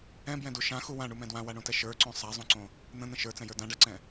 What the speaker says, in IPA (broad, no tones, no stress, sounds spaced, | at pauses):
ɛ̃ b j ɛ̃ d u ʃ ã x u w ã ɳ u m ɛ̃ d w ã w a ɳ õ t ɛ ʃ ə˞ ǀ õ sˤ a zˤ õ ǀ õ | n̪ ə̃ n̪ ə̃ ʃ ə˞ t͡s ɛ̃ j ə˞ d ã ɖ a ǀ ɛ̃